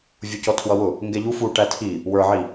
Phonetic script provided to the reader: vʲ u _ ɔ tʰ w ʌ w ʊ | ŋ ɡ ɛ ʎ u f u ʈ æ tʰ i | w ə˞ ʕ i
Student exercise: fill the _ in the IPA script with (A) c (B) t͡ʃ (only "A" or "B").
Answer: A